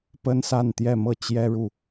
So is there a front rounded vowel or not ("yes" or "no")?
no